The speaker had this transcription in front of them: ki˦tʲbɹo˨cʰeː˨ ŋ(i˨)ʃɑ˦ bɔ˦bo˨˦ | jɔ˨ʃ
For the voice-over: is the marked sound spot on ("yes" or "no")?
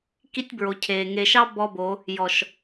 no